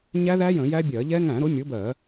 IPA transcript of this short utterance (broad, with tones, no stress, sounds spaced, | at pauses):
ɲ æ˦˥ ð æ˦˥ j ə̃˧˩˧ j æ˦˥ bʲ ɜ˧˩˧ ʎ ɛ˦˥ ŋ æ̃˧˩˧ ɾ ʊ˨˥ mʲ ʊ˨˥ b ɜ˧˩˧